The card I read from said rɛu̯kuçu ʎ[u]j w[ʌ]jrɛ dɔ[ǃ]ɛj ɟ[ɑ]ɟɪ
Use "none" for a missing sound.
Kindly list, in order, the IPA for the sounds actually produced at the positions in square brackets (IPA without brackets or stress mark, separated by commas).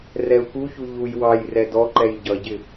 u, ɑ, ǃ, ʌ